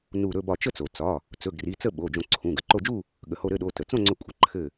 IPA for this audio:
n u˧˩ ɾ ɵ˥˨ b ɒ˧˩ t͡ʃ ə˥˨ t͡s o˩ t͡s ɒ˩˧˩ | t͡s ɵ˩˧˩ ɡ r i˩˧˩ t͡s ə˥˨ ɓ o˩˧˩ d͡ʒ õ˧˩ ǀʰ ũ˩˧˩ ɡ ə˩ ǃ o˧˩ d͡ʒ u˥˨ | ɠ ə˩ h o˧˩ ɾ ɘ˥˨ ɗ o˩˧˩ t ə˩ t͡s õ˥˨ ŋ͡ǀ ɵ˧˩ kʷʼ ə˩˧˩ ǃʰ ɘ˧˩

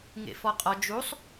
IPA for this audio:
ŋ ḛ f ɔ qʼ ɔ d͡ʒ u sˤ

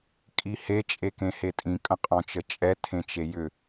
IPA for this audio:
kʼ i h e t͡ʃʼ e k ẽ h e tʼ ĩ kʼ ə̃ qʼ ɔ̃ t͡ʃ ə t͡ʃʼ ɛ tʰ ẽ t͡ʃ e j ʏ

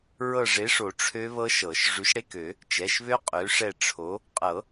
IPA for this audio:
ɹ ɤ˦˨ ʐ e˨˥ ʂ o˨˩˦ ʈ͡ʂʰ ø˦˥ β ɤ˦˥ ʃ ɤ˨˩˦ ʃ ʐ ʉ˨˥ ʃ ɽ e˧˥˧ k ø˨˩˦ | t͡ʃ ɛ˩˧˩ ʃ β ø˦˥ qʼ ø˨˥ ʂ ɛ˦˨ ʈ͡ʂʰ o˨˥ | qʼ ɤ˨˩˦

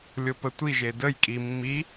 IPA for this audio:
lʲ o p ə tʷ i ʒ e d ə j kʼ i mː i

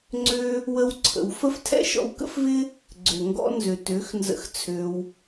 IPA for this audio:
ŋ͡ǀ ø˦ | w ə˦ w ǀʰ ə̰˧ w f ə˦ f tʰ ɛ̰˦ ʃ ɔ̰˧ w k ə̰˦ f v ɪ˦ | ɡ͡ǀ ø˨ ŋ ɡ ɔ̰˧ n z ø˨ t ø˨˦ x n z ə̰˧ x t͡sʰ ø˧ w

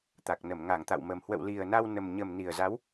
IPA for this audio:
t̪ a˨˩ k̚ n ə˧˩ m ŋ a˧˩ ŋ t̪ a̰˧˨ w m ə˨˩ m h w ə̰˧˨ w l i˨˩ ə̯ n a˧ w n ə˨˩ m ɲ ə˨˩ m n i˨˩ ə̯ z a˨˦ w

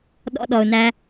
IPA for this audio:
ɗ ɔ̰˧ ɗ ɔ˨ ʊ̯ n æ˧

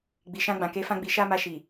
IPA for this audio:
ɡ͡b i˨ ʃ ã˧ ɡ͡b ã˨ k e˨˦ f ã˦ ɡ͡b i˧ ʃ a˦ m a˧ ʃ i˨

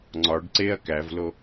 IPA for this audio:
ŋ͡ǀ ɒ ɖ ǀ e ɐ̯ k æ v l o

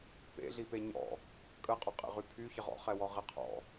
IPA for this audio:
p ḛ ɮ i p e ɲ ɔ̰ | kʼ ə qʼ œ qʼ ḛ ʁ y pʰ y ç ə ʁ ɔ̰ χ ɛ w ɔ ʁ e qʰ ɔ̰

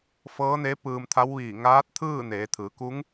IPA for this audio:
f ɤː˧˥ n eː˧˥ p ɯː˧ m t̪ʰ a˧˥ w ʋ iː˧˩ ŋ aː˧˥ t̚ t̪ʰ ɯː˥˨ n eː˩˧ t̪ʰ ɯː˩˧ k u˧˥ ŋ

